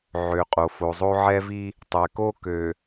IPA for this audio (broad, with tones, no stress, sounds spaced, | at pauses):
ʕ ø˨ qʼ o˨ f o˨ zˤ o˦ ʕ ɛ˦ v i˦ | tˤ ɛ˨ k o˦ k ø˨